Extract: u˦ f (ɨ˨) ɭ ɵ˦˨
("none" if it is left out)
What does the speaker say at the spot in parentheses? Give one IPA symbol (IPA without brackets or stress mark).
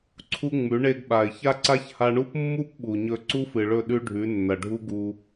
ɨ˨